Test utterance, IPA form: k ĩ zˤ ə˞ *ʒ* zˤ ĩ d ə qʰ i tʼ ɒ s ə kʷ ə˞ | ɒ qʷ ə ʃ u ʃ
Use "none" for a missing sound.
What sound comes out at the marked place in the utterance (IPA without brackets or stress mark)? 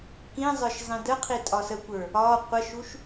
ʃ